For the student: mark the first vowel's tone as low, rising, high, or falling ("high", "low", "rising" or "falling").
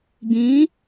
rising